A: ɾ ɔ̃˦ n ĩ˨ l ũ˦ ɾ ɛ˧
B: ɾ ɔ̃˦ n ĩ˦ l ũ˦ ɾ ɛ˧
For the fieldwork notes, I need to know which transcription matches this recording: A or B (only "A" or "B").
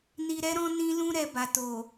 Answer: B